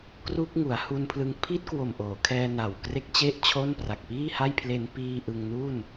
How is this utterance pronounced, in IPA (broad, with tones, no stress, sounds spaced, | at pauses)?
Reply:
k r u˦˥ k̚ ŋ u˩˦ a̯ h u˧ n pʰ l ɯ˧ ŋ pʰ i˦˥ t̚ k w o˨˩ m ʔ oː˩˦ kʰ ɛː˧ n a˨˩ w k r e˥˩ k̚ t͡ɕ e˥˩ ʔ t͡ɕʰ o˥˩ n p r a˨˩ k̚ p iː˥˩ h a˥˩ j pʰ l e˧ n p iː˧ ʔ ɯ˧ ŋ n u˥˩ n